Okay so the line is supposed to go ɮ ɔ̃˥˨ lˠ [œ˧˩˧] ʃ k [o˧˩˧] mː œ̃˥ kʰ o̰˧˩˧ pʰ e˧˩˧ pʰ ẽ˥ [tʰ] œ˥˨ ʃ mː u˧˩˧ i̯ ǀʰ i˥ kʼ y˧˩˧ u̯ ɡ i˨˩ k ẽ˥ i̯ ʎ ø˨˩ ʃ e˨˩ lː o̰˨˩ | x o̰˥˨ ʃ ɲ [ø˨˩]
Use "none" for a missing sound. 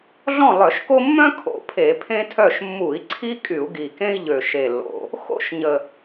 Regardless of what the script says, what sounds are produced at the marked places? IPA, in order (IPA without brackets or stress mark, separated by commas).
œ˧˩˧, o˥, tʰ, ə˨˩